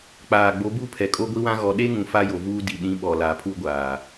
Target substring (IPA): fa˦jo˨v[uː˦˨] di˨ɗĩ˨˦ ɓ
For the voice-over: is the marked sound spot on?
no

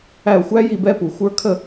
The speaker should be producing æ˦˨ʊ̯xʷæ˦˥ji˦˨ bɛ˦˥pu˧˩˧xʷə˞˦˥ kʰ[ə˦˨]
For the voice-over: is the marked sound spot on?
yes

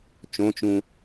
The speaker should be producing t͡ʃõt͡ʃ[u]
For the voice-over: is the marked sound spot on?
no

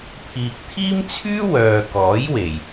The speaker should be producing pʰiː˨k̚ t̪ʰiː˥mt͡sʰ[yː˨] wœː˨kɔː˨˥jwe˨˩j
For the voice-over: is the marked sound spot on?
no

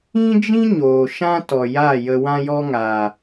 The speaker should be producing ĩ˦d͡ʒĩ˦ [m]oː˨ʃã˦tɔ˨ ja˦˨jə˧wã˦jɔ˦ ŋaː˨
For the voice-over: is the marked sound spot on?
no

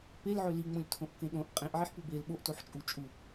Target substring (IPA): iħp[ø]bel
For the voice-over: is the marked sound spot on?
no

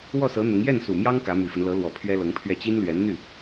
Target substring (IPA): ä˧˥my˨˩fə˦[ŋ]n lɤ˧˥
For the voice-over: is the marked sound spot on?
no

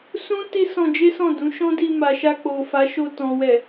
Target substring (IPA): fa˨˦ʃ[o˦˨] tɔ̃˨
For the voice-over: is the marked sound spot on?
no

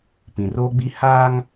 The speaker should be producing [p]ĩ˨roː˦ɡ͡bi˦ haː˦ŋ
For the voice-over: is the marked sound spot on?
yes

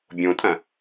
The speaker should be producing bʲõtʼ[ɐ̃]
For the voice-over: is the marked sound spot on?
yes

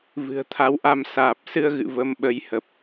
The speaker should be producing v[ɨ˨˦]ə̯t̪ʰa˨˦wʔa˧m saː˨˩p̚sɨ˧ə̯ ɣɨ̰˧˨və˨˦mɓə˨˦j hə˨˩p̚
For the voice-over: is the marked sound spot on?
no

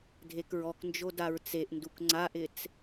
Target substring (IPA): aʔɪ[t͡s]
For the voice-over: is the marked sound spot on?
yes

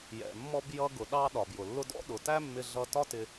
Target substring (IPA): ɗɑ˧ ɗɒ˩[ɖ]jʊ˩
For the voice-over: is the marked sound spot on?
no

